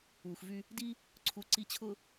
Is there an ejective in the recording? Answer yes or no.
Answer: no